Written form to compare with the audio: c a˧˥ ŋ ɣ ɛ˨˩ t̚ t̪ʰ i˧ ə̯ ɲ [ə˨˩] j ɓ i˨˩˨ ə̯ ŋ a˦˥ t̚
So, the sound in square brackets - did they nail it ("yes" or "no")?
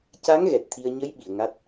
no